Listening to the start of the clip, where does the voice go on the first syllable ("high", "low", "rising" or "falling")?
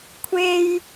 high